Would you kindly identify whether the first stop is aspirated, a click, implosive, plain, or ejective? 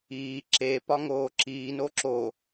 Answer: click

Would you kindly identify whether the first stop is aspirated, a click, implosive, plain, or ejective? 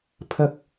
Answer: aspirated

